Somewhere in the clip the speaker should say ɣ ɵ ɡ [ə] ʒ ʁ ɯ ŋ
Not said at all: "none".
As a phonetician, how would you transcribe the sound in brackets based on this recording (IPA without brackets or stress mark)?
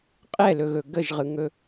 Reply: ə